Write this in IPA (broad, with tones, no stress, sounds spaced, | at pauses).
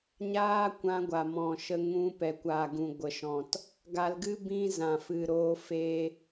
ɲ aː˦ kʷ ã˧ ɡʷ a˨ m ɔ̃˨ ʃ ə˧ ŋ ũ˧ p ɛ˨ kʷ aː˨ ɡ ũ˨ ɡʷ ə˨ ʃ ɔ̃˨ t | ɡ a˧ l ɡ ɨ˦ b ĩ˦ z ã˨ f ɨ˨ ɾ oː˧ f e˧